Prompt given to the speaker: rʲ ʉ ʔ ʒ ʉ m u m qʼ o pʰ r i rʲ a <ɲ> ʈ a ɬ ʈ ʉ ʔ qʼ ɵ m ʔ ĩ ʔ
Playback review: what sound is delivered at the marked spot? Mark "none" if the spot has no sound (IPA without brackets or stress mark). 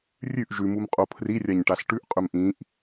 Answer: ɲ